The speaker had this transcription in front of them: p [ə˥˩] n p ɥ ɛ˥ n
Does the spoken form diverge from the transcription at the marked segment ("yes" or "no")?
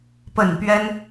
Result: yes